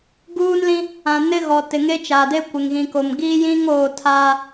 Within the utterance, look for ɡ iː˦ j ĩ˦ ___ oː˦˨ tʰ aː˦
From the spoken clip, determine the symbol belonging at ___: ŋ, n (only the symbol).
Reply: ŋ